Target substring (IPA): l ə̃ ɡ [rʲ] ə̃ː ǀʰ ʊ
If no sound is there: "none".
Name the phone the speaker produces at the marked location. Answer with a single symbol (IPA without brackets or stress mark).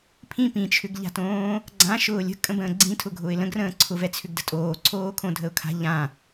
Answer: r